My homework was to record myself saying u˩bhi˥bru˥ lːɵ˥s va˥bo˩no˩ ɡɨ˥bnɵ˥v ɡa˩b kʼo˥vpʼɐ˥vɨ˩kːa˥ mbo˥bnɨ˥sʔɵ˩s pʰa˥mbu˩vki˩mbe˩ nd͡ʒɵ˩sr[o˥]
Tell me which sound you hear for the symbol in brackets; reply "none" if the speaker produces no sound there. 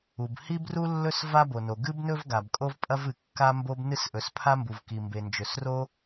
o˥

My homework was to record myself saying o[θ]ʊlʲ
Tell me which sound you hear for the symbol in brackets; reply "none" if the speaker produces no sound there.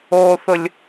θ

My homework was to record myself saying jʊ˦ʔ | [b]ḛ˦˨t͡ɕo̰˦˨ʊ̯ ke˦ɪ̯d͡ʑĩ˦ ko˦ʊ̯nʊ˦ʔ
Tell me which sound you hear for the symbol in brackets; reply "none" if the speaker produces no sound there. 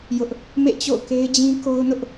m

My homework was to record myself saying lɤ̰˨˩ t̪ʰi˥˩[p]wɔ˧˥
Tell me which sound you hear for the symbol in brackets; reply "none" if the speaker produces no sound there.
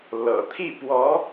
p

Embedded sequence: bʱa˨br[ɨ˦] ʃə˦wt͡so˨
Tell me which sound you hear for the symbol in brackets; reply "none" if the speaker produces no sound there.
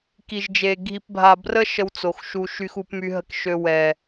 ə˦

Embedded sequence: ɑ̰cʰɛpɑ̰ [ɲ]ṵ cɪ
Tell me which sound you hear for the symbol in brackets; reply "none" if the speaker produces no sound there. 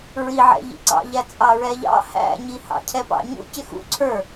ɲ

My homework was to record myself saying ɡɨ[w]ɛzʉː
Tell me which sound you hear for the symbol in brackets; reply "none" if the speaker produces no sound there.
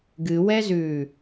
w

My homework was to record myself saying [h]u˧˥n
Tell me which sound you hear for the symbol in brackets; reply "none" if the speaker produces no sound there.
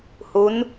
h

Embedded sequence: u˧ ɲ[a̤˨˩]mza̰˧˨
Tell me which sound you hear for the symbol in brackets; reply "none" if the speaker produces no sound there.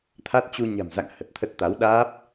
a̤˨˩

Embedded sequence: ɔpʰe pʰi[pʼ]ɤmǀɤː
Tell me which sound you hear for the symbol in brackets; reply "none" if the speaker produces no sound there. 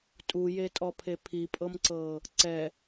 pʼ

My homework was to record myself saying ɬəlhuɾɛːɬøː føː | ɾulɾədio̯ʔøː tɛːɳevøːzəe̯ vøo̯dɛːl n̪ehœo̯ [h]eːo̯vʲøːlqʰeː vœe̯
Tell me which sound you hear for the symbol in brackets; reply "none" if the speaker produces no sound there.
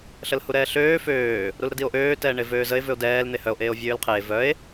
ʔ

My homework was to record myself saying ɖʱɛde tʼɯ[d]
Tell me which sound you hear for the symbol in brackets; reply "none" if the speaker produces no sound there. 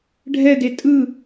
none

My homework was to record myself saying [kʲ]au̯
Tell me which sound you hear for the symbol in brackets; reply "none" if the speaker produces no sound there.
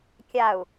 kʲ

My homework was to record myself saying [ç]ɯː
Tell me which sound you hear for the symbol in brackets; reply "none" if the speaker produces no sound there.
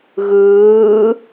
ɣ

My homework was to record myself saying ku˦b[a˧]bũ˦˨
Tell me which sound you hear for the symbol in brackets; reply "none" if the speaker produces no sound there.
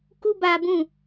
aː˧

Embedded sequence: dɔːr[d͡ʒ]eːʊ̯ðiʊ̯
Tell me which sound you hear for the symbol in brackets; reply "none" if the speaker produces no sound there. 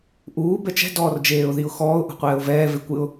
d͡ʒ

